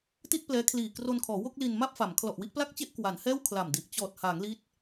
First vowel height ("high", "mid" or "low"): high